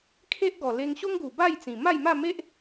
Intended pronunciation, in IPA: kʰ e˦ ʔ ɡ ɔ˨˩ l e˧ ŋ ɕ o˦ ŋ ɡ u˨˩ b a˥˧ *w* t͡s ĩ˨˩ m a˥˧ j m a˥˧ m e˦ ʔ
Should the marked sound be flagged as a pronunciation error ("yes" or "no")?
yes